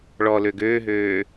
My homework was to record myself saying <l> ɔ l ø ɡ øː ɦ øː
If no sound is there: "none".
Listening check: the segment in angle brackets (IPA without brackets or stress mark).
ɭ